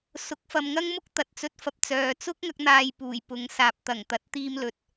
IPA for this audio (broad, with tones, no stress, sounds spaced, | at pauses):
s ʊ˨˥ k̚ f ɐ˨ m ŋ ɐ˥ ŋ m ʊ˥ k̚ t̪ ɐ˨ t̚ t͡s ɵ˧ t̚ f ɐ˧ p̚ t͡s œː˨ t͡s ʊ˥ k̚ ŋ ɐ˧ k̚ n̪ aː˧ j p uː˨˩ j p ʊ˨ ŋ s aː˨ p̚ t̪ ɐ˨˩ ŋ t̪ ɐ˨˥ t̚ t̪ iː˧ m l ɵ˨ t̚